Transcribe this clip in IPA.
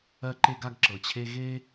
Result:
ɜ˥ ǃ e˥ ɡ a˥ ɡ ǁ ɤ˩ t͡ɕʰ e˥ ɣ e˥

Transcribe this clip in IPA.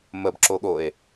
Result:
m ə b ǁ o ɠ o e̯

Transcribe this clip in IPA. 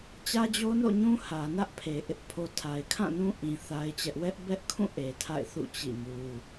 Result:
t͡ɕ ä˦ d͡ʑ o˦ n o̰˦˨ ɲ ũ˦ h ä˨ n ä˦ ʔ pʰ e˨ ʔ ɪ˦ ʔ pʰ o˦ tʰ a˨ ɪ̯ kʰ ã˦˨ n ũ˦ ʔ ĩ˨ θ a˦ ɪ̯ t͡ɕ ɛ˦ ʔ w ɛ˦ ʔ b ɛ˦ ʔ kʰ ũ˦˨ ʔ e˨ tʰ a̰˦˨ ɪ̯ θ ṵ˦˨ t͡ɕ ḭ˦˨ m u˦

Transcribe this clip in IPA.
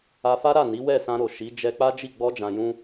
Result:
a˧ f a˦ ɾ a˦˨ n i˨˦ w ɛ˦˨ s ã˧ ɾ o˨ ʃ i˨˦ d͡ʒ ɛ˧ k͡p a˦ d͡ʒ i˦˨ ɡ͡b ɔ˧ d͡ʒ ã˨ j ũ˧

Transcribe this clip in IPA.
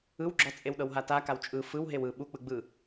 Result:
ɯ w ɡ͡ǁ ɔ t͡sʼ e w ɗ ɤ w ɦ a t a k a w t͡ʃʼ ɯ f ɯ w ɦ e w ɯ ɓ u k͡p ɯ ɡ͡b ɯ

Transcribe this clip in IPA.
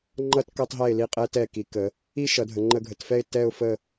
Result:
ŋ͡ǃ ʌ˥ t k ʌ˧ tˤ ɦ ɛ˧˩ ɪ̯ l i˧˩ qʼ ɛ˧ t ɛ˧˩ k i˩˧ k ə˩˧ | i˥ ʃ ʌ˩˧ dʱ ə˩˧ ŋ͡ǃ ə˧ ɡʱ ə˩˧ t f ɛ˥˧ ɪ̯ t ɛ˥˧ ʊ̯ f ə˥˧

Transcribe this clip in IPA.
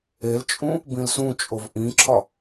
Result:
e l t͡ʃʼ ũ | b ĩ l s ũ t͡ʃʼ o v ʔ ĩ ǁʰ ɒ

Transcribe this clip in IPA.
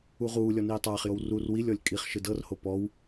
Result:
u ʁ uː lʲ ɔ n iː tˤ aː χ j o w r u r w i lʲ ɔ lʲ kʼ i χ ʃ ɯ d ɤ r h o p ɔ w

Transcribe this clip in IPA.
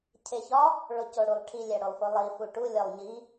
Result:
cʰ e ç ɒ | ɭ o c o ɽ u lˠ ʈʰ i lʲ æ ɽ o lˠ f o lˠ i f u ʈ u lʲ ɒ lˠ ɲ i

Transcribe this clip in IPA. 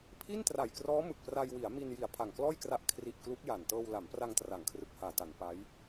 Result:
pʰ i˥˩ n t r a˨˩ j k r ɔː˦˥ m ɯ˨˩ k̚ p r a˧ j w i˩˦ a̯ m i˧ n j i˨˩ a̯ pʰ a˨˩ ŋ k l ɔː˥˩ j k r a˦˥ ʔ kʰ r i˨˩ ʔ k l u˦˥ k̚ j a˨˩ n t ɤː˧ w l a˩˦ m p r a˧ ŋ t r a˩˦ ŋ kʰ r ɯ˨˩ k̚ h aː˨˩ t a˩˦ n p a˦˥ j

